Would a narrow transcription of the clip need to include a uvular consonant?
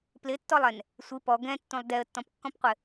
yes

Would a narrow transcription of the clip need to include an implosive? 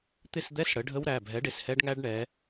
no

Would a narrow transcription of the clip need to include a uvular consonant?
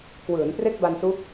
no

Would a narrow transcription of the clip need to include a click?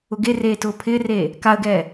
no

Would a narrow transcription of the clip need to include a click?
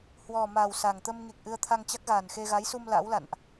no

